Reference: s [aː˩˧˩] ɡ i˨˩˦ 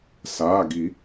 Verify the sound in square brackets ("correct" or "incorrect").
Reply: correct